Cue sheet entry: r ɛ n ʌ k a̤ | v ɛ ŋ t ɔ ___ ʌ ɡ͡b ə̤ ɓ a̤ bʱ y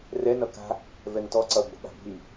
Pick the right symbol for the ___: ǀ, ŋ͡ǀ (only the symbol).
ǀ